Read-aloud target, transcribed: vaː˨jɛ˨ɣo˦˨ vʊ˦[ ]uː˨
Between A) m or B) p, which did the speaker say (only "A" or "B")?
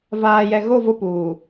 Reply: B